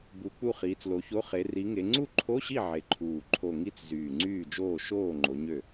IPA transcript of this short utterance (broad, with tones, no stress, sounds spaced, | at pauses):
b u˨˦ k͡p u˥˩ χ iː˨˦ t͡s l o˨˦ ç o˧˥˧ χ e˨˦ r i˨˦ ŋ e˨˦ ŋ͡ǀ u˥˩ ǃʰ o˧˥˧ ɕ i˥˩ ʕ e˨˦ ǃʰ uː˧˩ ǃʰ o˧˩ ŋ i˥˩ t͡s z yː˧˩ ŋ͡ǀ yː˥˩ d͡ʒ oː˥˩ ʃ oː˥˩ ŋ͡ǃ o˨˦ ɲ ø˥˩